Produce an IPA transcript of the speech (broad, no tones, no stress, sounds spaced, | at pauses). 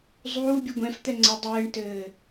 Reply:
zˤ uː bʲ ɨ ɡʷ ɛ̃ f t̪ ɛ ŋ͡ǀ ɘ dˤ ɘː ɳ t ɘː